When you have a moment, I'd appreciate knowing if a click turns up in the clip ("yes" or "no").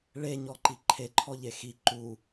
yes